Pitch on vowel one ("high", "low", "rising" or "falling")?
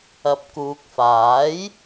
low